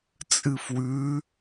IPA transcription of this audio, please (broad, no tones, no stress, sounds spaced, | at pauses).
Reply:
t͡sʼ ɨ f w ʉ